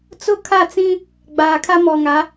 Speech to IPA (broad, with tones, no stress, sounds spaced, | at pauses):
t͡s ʊ˦ kʰ a˦˨ t͡s ĩ˦ | ɡ͡b aː˨ kʰ a˦ m ɔ˨ ŋ a˨˦